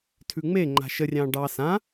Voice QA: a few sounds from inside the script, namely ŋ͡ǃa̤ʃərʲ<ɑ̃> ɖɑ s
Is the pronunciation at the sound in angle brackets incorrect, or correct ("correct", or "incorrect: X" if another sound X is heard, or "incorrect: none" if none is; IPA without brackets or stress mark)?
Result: correct